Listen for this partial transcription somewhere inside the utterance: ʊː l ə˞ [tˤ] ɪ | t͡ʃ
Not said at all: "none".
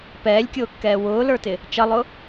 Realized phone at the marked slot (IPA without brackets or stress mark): t